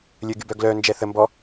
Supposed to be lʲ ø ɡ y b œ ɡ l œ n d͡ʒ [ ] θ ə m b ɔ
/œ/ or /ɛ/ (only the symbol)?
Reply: ɛ